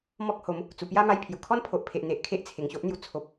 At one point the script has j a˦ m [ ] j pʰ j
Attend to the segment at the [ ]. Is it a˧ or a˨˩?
a˧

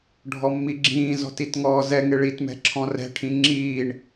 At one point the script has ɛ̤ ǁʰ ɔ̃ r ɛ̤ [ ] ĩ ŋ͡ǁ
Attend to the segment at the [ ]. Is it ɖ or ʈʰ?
ʈʰ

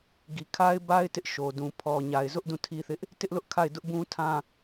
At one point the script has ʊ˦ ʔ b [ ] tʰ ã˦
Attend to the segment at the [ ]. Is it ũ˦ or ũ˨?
ũ˦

